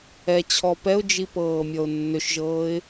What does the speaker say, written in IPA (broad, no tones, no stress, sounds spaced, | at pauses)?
ɛ t͡ɕʰ ɔ p ɛ ʊ̯ d͡ʒ i p ɤː mʲ ɔ ʊ̯ nː ø ʃ ʒ ɤː ɪ̯